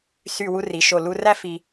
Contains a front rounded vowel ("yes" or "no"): yes